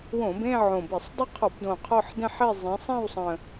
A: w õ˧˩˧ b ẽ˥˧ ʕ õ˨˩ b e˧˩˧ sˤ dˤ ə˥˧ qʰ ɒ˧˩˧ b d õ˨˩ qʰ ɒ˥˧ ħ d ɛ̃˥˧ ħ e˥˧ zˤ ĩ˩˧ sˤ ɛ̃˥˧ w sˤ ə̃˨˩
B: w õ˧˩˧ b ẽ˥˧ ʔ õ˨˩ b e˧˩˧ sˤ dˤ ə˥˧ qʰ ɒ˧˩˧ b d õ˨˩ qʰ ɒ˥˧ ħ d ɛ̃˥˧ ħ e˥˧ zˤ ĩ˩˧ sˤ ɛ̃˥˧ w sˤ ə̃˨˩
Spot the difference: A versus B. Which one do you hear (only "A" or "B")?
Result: A